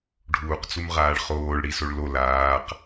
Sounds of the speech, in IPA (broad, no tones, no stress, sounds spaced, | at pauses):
ɖʱ uː q t͡s u m ʁ aː ɭ χ oː ɭ ɽ i s o ɭ l o l aː q